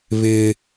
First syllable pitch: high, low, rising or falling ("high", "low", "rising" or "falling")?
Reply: high